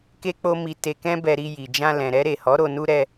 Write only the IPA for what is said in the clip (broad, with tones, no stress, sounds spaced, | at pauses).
k e˦ k͡p o˦ m i˧ t e˧ k ɛ̃˦ b ɛ˧ ɾ i˧ j i˨ d͡ʒ ã˧ l ɛ̃˨ ɾ ɛ˧ ɾ e˨ h ɔ˨˦ ɾ o˧ n u˦ ɾ ɛ˧